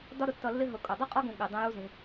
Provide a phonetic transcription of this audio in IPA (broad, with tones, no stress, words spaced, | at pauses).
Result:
dɒ˦ɾʊ˨tːʌ˧lːɪ˦ ɦʊ˧kʼʊ˨ dˤi˦qʼɒ˦ɡũ˨ ɠɪ˨ dˤĩ˧ju˦zĩ˧